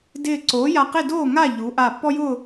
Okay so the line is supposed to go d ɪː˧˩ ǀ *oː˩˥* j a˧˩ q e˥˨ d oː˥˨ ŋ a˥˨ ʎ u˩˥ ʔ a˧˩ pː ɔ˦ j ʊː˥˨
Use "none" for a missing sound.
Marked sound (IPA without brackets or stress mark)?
oː˩˥